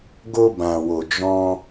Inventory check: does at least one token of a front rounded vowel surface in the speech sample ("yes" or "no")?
no